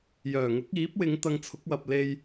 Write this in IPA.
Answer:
j œː˨˩ ŋ ʊ˨˥ k̚ iː˨˥ p̚ w ɪ˨˧ ŋ t̪ ɐ˧ ŋ t͡sʰ ʊ˨˥ k̚ w ɐ˨ p̚ l e˧ j

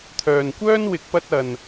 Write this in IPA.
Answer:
t̪ʰ œː˨ n kʷ œː˥ n w ɪ˨˥ k̚ p ɐ˧ t̚ ɐ˨ n

